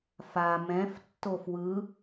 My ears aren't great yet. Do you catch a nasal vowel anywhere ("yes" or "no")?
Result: yes